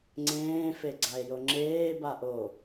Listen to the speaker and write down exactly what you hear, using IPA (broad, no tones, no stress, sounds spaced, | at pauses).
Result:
ŋ͡ǀ ẽː f e ɡ͡ǀ a e̯ j o ŋ͡ǁ eː b a ʔ o